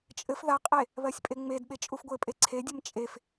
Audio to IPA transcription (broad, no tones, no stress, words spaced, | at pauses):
t͡ʃʼɘf ðaqʼe | βɜsʲpʼeŋ͡medɓe t͡ʃʼufɡʷɘpʼe ǀʰedʲɘm t͡ʃʼef